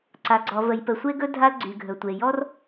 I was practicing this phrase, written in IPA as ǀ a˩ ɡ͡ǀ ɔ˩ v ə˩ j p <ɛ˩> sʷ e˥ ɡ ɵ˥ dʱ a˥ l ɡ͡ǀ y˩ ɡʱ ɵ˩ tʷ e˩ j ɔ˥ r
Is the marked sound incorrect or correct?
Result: incorrect